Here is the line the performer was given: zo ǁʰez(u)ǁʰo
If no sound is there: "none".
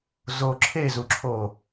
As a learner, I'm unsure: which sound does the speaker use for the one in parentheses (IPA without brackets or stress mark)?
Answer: u